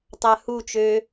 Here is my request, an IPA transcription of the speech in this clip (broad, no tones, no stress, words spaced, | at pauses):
tˤahut͡ʃøː